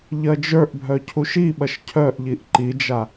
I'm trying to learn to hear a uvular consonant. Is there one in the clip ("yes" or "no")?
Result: no